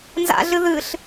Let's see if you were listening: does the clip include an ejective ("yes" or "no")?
no